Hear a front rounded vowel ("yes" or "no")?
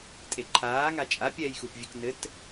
no